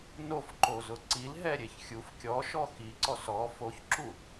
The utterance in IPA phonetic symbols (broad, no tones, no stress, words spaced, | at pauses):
nofǃozʊ ǀilɦɛɾʲeç xʲuf kʲɔʃɔ xiǀɔs ɔ foçǁu